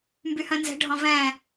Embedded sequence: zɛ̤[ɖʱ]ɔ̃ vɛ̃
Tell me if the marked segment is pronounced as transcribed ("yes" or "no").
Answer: yes